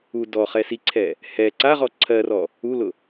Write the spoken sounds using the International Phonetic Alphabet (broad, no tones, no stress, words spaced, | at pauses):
u dɔχɛ siǀʰɛ | hɛ ǀaʁɔ ǀʰɜrɔ | ulʊ